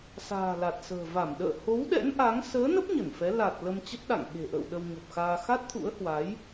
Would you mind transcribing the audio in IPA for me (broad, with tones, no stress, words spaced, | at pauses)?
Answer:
sa̤ː˨˩la˨˩t̚sə̤ː˨˩ va˧˩mɗə̰ː˧˨ ho˨˦wɗɛ̰˧˥n ʔa˨˦ŋ səː˨˦nə˦˥p̚ ɲə˧˩nfɛ˨˦ la˨˩t̚ lə˧mt͡ɕə˦˥t̚ɗa̰˧˨ŋ ɓe̤˨˩ʔə̰ː˧˨w ɗə˧wɲo˨˩p̚xaː˧ xa˦˥t̚t̪ʰṵ˧˥ə̯hwa˨˦j